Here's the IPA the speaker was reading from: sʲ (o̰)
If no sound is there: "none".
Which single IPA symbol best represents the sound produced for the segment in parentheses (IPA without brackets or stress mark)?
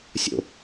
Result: o̰